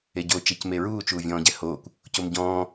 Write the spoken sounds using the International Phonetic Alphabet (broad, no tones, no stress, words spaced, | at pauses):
eɟo t͡ʃecmeɹuː t͡ʃuːvʲɔ̃ːɟɛhoːkʷ | comɟɔ̃ː